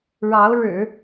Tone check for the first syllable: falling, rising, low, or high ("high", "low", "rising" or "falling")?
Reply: rising